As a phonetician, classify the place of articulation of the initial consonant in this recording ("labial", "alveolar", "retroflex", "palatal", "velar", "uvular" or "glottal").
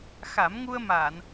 velar